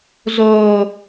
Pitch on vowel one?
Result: low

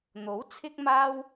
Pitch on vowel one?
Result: rising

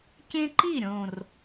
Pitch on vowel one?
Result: high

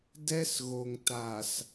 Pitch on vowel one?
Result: high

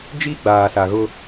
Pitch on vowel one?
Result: high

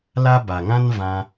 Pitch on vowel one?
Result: high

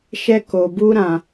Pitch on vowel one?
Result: high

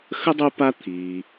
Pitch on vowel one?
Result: high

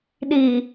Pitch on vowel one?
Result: low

